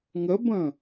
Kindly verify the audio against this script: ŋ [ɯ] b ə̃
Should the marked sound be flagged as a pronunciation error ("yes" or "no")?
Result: yes